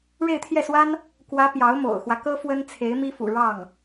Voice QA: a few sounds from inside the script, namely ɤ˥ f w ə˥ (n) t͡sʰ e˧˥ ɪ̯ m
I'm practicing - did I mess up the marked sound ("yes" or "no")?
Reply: no